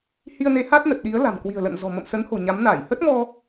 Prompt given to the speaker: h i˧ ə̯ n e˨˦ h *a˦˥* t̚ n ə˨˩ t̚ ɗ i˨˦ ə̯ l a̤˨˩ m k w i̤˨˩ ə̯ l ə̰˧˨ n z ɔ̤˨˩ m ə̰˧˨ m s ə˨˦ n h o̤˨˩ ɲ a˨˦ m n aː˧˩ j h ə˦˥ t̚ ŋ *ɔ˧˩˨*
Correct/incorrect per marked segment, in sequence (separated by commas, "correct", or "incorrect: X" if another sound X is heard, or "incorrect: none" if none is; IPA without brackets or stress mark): correct, incorrect: ɔ˧